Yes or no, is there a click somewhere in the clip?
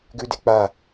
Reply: no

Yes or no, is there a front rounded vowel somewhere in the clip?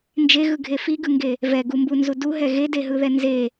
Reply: no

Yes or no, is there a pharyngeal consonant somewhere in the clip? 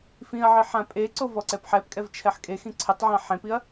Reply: yes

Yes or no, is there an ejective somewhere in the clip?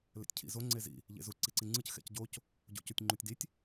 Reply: no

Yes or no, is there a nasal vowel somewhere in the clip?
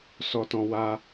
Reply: yes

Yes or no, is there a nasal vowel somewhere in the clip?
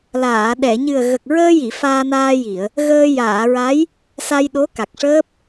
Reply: no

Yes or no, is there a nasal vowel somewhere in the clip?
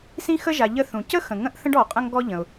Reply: yes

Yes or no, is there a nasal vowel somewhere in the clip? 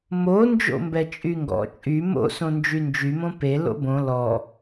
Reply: yes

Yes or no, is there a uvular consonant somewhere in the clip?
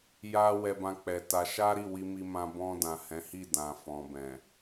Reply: no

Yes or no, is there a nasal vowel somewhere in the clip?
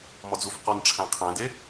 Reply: yes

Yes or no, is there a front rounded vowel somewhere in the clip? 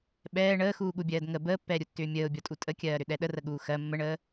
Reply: yes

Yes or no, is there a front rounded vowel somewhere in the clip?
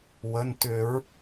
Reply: yes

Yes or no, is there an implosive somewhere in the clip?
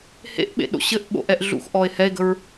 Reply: yes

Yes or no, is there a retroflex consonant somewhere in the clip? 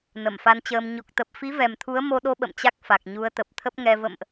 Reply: no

